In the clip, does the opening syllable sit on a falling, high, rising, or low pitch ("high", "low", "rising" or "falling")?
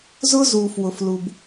high